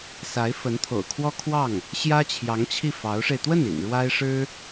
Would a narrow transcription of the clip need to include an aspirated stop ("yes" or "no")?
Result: yes